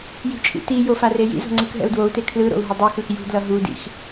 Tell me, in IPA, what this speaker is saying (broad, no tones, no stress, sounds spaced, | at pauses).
j i̤ t͡ʃʼ ḭ t i j o f a r e j ḭ z o̤ ŋ͡ǀ ɯ k ɦ ɛ̰ u̯ d w o u̯ t e kʰ l ɯ ɾ o̰ u̯ ɦ ʌ dˤ u x ɯ x j ṳ d l ʌ ɦ u d ḭ x